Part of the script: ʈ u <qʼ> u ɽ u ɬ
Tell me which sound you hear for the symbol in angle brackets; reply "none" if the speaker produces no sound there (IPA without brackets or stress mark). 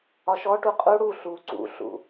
qʼ